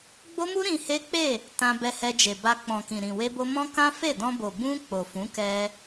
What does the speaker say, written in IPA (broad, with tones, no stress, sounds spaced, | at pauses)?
ɡ͡b o˦ m u˦ ɾ ĩ˧ h e˦ k͡p e˦˨ | t ã˧ b ɛ˧ h ɛ˧ d͡ʒ e˨ b a˧ k͡p ɔ̃˨ k ĩ˨ ɾ ĩ˨ w e˧ b o˧ m ɔ̃˦ k ã˦ f e˦˨ d ɔ̃˧ b o˨ b ũ˧ k͡p o˨ f ũ˨˦ k ɛ˧